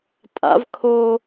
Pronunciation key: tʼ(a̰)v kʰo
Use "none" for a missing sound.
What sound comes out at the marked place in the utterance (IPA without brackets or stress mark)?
a̰